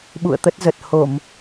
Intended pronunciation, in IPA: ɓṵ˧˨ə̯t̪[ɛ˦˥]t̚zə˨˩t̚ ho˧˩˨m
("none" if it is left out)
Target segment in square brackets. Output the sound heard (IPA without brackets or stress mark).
ə˦˥